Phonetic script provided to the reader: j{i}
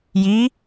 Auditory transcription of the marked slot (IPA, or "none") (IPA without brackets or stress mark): i